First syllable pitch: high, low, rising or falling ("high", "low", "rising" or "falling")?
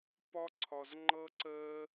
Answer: high